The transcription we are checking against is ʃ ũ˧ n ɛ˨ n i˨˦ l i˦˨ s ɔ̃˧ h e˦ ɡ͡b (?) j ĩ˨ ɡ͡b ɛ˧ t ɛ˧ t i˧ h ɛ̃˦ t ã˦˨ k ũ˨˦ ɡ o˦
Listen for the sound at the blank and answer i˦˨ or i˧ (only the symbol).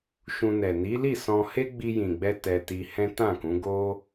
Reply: i˧